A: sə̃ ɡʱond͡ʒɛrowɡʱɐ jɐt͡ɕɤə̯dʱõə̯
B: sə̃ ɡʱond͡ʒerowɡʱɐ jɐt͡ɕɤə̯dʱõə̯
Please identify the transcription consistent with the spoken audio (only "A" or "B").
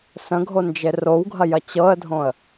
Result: B